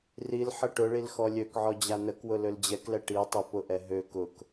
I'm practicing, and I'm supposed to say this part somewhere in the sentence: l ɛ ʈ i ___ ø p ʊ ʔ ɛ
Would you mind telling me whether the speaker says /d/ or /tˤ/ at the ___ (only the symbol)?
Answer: tˤ